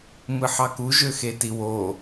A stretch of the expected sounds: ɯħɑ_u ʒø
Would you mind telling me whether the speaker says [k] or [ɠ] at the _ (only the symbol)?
k